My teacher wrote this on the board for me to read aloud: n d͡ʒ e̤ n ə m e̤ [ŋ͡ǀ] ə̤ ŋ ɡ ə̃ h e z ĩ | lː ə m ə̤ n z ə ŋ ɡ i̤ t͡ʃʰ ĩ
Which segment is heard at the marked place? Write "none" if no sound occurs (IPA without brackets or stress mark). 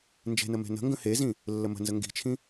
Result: n